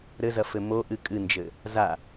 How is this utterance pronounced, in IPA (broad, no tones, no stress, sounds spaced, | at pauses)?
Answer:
ɾ ɘ z ɐ f ɘ m o ʔ ɨ kʼ ɨ n d͡ʒ ɘ | z a